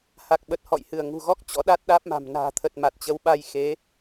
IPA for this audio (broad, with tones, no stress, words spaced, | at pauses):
ha˨˩k̚ɓə˨˩t̚ hɔ̰˧˨jhɨ˧˩ə̯ ŋṳ˨˩ɣɔ˦˥k̚ t͡ɕɔ̰˧˥ɗa˦˥t̚ɗaː˦˥p̚ma̤˨˩m na̤ː˨˩t̪ʰə˨˩t̚ ma˨˩t̚t͡ɕə˨˦wɓa˧j xe˨˦